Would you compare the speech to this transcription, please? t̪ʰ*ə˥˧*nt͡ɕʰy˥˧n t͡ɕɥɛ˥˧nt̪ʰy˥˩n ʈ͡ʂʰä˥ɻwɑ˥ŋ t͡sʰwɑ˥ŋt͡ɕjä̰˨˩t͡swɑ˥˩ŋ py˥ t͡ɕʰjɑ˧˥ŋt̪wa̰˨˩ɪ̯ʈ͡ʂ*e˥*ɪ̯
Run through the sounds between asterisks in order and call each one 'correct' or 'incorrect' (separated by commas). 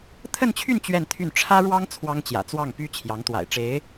correct, incorrect